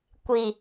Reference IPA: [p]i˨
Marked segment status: incorrect: kʷ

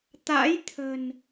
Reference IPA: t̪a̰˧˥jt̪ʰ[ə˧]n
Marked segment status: incorrect: ə̤˨˩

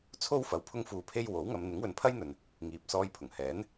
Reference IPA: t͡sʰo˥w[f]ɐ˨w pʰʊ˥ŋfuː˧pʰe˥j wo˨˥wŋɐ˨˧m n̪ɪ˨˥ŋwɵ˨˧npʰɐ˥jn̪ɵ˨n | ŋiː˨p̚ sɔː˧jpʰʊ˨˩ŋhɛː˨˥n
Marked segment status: correct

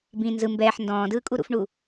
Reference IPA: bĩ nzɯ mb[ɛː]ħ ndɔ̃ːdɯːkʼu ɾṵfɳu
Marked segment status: correct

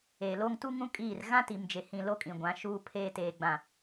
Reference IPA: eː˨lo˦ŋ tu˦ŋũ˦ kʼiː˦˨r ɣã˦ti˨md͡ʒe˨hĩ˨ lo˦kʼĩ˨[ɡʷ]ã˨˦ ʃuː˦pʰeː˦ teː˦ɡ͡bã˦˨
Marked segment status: correct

